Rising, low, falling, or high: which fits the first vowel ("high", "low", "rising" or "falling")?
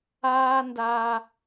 high